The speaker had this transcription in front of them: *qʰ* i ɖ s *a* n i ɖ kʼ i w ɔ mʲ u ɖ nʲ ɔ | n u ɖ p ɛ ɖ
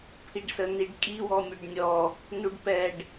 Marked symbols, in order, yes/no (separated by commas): no, no